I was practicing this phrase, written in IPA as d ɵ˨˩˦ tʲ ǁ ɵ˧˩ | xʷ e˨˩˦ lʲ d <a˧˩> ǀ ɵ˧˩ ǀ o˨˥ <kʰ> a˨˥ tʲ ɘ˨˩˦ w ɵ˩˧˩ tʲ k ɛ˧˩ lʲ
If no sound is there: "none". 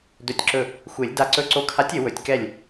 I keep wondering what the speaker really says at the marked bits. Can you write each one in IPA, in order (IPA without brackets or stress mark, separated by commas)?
a˧˩, kʰ